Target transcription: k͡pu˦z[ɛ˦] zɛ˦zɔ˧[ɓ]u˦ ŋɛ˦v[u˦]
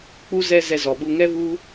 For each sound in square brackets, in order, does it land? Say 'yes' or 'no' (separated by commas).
yes, yes, yes